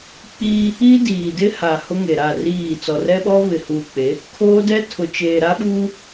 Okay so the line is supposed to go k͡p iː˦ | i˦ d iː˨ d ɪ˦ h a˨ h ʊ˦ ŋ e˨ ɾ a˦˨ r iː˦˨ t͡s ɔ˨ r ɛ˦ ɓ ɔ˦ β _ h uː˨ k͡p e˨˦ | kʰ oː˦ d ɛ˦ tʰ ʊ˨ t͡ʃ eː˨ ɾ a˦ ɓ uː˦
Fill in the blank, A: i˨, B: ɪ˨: B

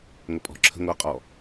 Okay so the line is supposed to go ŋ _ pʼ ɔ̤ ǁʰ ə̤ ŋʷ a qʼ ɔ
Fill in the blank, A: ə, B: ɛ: A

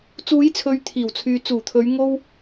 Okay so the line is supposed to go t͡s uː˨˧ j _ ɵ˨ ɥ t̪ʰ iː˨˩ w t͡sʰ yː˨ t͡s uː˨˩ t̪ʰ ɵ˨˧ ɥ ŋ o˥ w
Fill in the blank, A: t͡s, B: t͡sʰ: B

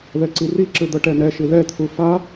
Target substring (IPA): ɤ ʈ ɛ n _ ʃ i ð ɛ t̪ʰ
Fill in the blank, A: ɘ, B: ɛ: B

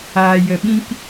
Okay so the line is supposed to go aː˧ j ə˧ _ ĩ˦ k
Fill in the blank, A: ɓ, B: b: A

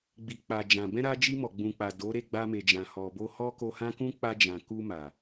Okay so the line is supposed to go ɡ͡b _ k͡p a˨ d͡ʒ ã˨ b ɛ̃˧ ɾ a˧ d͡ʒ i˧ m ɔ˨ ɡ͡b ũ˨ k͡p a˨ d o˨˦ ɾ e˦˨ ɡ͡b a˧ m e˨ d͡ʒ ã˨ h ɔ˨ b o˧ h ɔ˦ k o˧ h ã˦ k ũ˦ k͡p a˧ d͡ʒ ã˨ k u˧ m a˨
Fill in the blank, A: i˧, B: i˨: B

